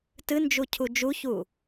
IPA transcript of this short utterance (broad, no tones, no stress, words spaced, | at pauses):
tɨnd͡ʒu cʰud͡ʒuçuː